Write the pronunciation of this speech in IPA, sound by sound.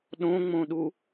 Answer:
ɗ õ ŋ͡m õ ɗ u

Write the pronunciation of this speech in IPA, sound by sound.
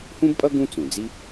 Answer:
h ũ˥ b pʼ ʌ˥ ɡ ũ˥ t͡s ũ˩ d͡z i˥

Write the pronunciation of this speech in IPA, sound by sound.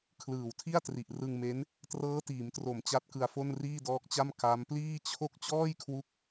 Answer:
kʰ l ɯː˨˩ w tʰ i˥˩ a̯ t r i˨˩ ʔ r ɯ˧ ŋ m e˦˥ n | t r ɤː˦˥ t iː˩˦ m t r o˨˩ m t͡ɕ a˦˥ t̚ k ɯ˧ a̯ f o˥˩ n r iː˥˩ d ɔː˦˥ k̚ t͡ɕ a˥˩ m k a˦˥ m p l iː˥˩ t͡ɕʰ o˥˩ k̚ t͡ɕ ɔː˥˩ j kʰ w u˦˥ k̚

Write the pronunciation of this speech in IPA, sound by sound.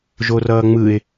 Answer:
ʒ o r ʌː ŋ͡m ɯ ɪ̯

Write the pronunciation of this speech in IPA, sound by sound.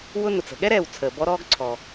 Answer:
w ʊ˦ n ʊ˩ t͡s ə̤˨ ɠ ɛ˥ ɾ ɛː˩ w t͡sʰ əː˩ b ɔ˦ ɾ ɔː˦ ɡ ǀʰ ɔː˩

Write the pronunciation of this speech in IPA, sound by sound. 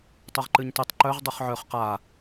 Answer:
tˤ o ʁ ǃ ɨ ɲ t ɨ tˤ ǃ œ ʁ dˤ u χ ʕ œ χ q a

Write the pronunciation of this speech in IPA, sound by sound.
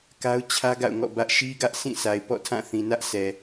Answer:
k a˦ ʊ̯ t͡ɕʰ ä˦ ɡ a̰˦˨ ʊ̯ ŋ ɔ̰˦˨ b ä˦ ʔ ʃ i˦ ɡ ä˦ ʔ sʰ ĩ˦˨ sʰ a˨ ɪ̯ p ɔ̰˦˨ tʰ ã˦˨ θ ĩ˨ n ä˦ ʔ sʰ ɛ˨

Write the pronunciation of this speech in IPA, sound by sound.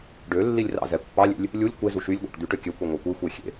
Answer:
ɖ ø lː i lʲ r ɑ̰ z ɛ pː ɑ lʲ ḛ lʲ | lʲ u lʲ kʷ e z u ʃ y lʲ ɡʷ ɑ̰ ʈ d̪ y ʈ ø kʲ ø kʷ i ŋʷ ɑ kʷ i xʷ e xʲ ḛ

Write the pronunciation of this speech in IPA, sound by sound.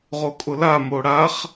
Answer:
ʁ o kʼ ʊ l a m o ɽ a χ

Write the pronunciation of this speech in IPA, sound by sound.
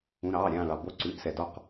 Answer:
ũ˩˧˩ ɾ ɑː˩˧˩ ɾʲ ãː˧˩ ɭ ɑ˩ b o˧˩ ǀ ʉ˩˧˩ ʔ s ɛ˩ d ɒ˧˩ q

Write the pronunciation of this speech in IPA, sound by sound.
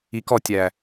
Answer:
i k ɔ tʲ æ

